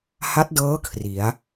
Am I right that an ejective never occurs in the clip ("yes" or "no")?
yes